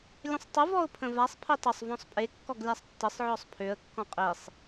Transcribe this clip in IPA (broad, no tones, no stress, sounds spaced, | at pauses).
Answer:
lʲ ə̃ sˤ tˤ ə v ɔ ʊ̯ pʰ ə̃ v a sˤ pʰ i tˤ ə sˤ v ɔ̃ sˤ pʼ e kː ɔ ɡ lʲ a sˤ tː ə sˤ ʕ ɔ sˤ pʰ ø ə̯ kː ɔ̃ qʼ i sˤ